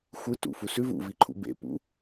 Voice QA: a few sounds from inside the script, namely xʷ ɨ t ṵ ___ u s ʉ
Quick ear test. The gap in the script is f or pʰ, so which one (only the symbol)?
f